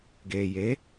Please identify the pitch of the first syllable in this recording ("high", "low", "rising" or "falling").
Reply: low